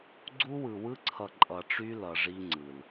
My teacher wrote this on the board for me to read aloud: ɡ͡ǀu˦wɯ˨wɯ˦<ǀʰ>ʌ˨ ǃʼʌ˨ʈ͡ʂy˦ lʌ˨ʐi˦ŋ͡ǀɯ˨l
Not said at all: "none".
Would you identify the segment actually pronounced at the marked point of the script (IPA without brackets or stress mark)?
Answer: ǀʰ